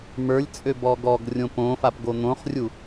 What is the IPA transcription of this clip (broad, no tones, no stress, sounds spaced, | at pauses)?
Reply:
m ə˞ lʲ t͡sʼ ø b ɔ ɡ ɔ ɡ rʲ õ p õ f a p ɡ o n̪ õ χ rʲ u